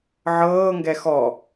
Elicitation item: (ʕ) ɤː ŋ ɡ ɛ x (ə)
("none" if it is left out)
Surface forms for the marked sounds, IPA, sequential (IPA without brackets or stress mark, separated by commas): ʕ, ɔ